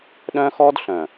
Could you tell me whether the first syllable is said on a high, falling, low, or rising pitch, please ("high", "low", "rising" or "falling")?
high